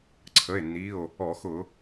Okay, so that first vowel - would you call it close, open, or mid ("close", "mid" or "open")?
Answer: mid